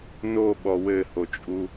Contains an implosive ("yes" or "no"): yes